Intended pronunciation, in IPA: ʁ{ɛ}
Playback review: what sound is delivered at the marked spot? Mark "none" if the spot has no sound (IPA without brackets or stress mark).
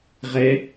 ɛ